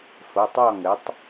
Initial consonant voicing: voiceless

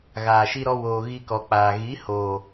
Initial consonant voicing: voiced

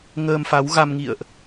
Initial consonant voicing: voiced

